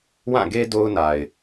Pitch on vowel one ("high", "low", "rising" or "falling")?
falling